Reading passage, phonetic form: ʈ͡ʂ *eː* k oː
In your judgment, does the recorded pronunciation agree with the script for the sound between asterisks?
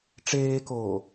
yes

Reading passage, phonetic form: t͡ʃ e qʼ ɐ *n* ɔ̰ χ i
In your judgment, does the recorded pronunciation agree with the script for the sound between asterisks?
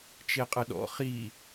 no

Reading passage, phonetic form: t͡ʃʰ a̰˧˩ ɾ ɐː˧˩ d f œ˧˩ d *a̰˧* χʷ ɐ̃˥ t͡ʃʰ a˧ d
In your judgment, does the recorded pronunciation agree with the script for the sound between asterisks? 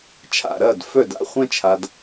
yes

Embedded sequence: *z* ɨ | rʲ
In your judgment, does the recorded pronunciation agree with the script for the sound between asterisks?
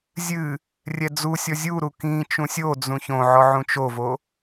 no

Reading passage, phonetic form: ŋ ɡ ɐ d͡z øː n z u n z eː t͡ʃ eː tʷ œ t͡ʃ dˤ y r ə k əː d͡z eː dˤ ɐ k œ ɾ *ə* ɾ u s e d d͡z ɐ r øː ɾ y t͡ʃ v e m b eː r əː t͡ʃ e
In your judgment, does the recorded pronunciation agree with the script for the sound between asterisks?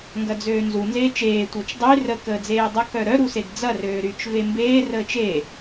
no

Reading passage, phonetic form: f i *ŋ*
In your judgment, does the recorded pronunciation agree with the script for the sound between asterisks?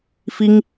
yes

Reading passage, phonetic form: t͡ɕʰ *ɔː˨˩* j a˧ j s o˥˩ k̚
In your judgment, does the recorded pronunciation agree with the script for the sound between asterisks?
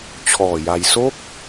yes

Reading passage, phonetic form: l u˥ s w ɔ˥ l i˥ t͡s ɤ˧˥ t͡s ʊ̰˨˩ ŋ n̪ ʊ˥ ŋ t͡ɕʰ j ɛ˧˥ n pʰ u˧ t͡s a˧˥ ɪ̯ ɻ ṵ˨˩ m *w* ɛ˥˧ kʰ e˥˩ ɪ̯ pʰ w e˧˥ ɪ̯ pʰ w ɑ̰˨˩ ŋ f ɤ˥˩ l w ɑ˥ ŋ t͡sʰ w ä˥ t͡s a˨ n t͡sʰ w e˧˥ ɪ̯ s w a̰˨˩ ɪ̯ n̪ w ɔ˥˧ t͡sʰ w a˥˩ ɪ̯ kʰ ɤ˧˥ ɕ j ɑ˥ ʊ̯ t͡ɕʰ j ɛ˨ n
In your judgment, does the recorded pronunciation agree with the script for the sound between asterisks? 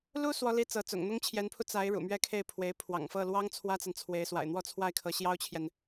no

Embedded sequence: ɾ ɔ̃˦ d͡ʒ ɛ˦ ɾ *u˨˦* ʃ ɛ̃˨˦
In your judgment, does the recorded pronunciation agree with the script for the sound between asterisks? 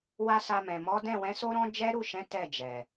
no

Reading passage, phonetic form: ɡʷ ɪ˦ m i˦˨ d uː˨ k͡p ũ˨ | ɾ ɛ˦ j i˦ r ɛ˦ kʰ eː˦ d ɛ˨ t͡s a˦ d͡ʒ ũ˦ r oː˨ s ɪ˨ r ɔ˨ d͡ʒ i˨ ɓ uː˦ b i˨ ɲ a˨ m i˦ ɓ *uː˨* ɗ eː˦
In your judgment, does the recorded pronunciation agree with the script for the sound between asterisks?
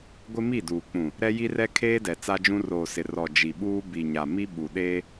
no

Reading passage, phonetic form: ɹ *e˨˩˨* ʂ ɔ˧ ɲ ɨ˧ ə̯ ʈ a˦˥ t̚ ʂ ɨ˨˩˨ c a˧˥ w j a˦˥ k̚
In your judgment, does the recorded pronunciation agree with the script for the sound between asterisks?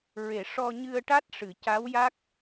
yes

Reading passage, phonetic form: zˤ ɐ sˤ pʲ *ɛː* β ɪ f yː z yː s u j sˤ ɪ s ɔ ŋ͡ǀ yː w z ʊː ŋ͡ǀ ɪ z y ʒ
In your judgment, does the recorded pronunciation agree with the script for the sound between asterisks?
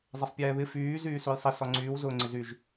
yes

